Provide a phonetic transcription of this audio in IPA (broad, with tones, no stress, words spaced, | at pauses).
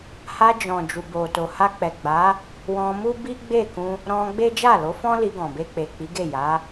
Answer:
ha˧d͡ʒɔ̃˨ d͡ʒu˨bo˨to˨ ha˧k͡pɛ˨ ɡ͡ba˨˦ | wɔ̃˧mu˦bi˦ ɡ͡be˦˨kũ˧ | ɾɔ̃˧ ɡ͡be˦ d͡ʒa˦˨lo˨˦fɔ̃˦ li˧ɡɔ̃˨be˧ k͡pe˨k͡pi˨˦ɡe˦˨ ja˨˦